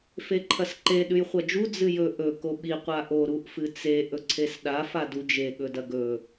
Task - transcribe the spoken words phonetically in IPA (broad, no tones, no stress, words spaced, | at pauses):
feǃʰɐsǃe ɗʉjχʷɐd͡ʒu d͡zɨjɵ ʔɵ koɓi qʷaʔo ɾuʔfɨt͡se ʔɵǀʰesɗa fadud͡ʒe ɠɵdɐɡɵ